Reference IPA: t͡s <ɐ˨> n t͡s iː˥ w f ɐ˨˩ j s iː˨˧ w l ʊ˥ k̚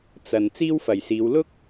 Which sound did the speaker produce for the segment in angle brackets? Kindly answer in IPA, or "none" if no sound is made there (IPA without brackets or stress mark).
ɐ˨